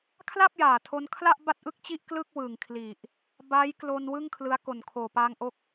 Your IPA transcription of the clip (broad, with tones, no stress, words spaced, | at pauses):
kʰla˥˩p̚jaː˨˩tʰo˧n kʰla˥˩ʔ ba˥˩t̚ʔɯ˥˩k̚t͡ɕi˥˩ʔ klɯ˥˩k̚wɯ˨˩ŋkʰli˨˩ʔ | ba˦˥jklo˧n wɯ˥˩ŋkʰlɯ˦˥a̯ ko˨˩nkʰoː˨˩paː˧ŋʔo˦˥k̚